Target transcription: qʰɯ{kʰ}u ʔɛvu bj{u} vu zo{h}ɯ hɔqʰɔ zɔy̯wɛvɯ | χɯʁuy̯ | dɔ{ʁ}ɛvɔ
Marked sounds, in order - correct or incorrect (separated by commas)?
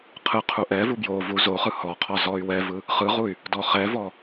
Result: incorrect, incorrect, incorrect, incorrect